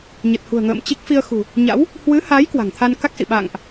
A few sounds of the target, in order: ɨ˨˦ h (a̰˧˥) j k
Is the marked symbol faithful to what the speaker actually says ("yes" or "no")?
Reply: no